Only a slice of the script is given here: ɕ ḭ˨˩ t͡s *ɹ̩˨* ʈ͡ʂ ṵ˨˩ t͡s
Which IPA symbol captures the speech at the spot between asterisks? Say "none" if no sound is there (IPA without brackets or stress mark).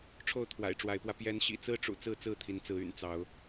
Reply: ɹ̩˦